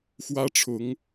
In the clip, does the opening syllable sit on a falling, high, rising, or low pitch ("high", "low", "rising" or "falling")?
high